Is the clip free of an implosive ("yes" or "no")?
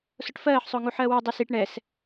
yes